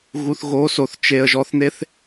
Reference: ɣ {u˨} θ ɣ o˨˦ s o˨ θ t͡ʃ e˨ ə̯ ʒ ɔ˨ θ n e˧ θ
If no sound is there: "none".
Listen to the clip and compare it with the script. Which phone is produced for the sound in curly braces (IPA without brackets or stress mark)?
u˨